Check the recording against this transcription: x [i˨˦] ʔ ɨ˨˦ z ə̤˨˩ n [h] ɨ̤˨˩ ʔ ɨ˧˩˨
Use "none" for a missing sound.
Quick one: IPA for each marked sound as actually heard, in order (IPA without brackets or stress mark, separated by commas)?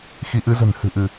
i˨˦, h